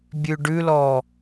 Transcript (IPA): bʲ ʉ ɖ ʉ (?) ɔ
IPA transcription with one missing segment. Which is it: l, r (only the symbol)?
l